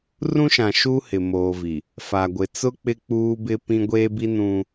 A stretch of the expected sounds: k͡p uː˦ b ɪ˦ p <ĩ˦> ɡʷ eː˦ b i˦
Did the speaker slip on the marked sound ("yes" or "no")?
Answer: no